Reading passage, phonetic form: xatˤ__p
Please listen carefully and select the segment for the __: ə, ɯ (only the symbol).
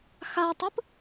ɯ